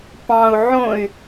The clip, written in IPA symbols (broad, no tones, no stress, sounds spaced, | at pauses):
p ɑ̃ u̯ ʕ õ y̯